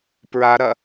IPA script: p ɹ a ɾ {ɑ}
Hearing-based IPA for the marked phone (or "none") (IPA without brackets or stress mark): ɐ